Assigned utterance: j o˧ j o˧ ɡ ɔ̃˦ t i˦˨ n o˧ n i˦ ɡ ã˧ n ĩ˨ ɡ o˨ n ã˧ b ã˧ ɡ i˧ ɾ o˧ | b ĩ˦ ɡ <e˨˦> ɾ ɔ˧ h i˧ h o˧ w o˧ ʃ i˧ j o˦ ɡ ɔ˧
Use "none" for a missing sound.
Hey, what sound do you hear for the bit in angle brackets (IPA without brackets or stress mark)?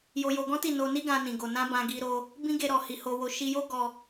e˦